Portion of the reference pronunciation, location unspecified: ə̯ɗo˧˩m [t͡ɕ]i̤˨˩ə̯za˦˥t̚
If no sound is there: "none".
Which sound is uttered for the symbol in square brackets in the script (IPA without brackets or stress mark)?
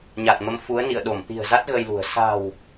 t̪